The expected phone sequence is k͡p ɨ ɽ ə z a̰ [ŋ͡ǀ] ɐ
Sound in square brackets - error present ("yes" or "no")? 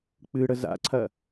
yes